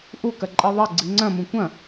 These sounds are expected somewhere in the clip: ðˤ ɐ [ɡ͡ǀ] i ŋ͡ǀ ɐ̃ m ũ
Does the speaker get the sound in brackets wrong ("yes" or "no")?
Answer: no